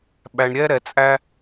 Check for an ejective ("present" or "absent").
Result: present